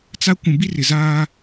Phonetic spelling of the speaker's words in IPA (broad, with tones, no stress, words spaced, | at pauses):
t͡sa˦ kʷũ˨bi˦rɪ˨zaː˦